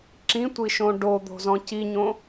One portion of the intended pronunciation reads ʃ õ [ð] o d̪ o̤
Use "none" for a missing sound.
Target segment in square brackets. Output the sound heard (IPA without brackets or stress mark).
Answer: ɖ